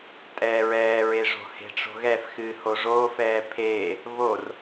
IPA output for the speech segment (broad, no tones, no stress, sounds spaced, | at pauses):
tʼ ɛː ɹ ɛː ɹ e ʐ o̤ h e̤ ʈ͡ʂ o̤ ɣ ɛ f x ɨː h o ʐ oː f ɛː pʰ eː | β o r